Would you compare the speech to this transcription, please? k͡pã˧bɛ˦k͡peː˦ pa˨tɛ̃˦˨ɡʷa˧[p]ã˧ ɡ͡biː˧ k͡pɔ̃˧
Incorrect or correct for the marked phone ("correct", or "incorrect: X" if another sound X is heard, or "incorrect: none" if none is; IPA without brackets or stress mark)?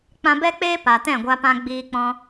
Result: correct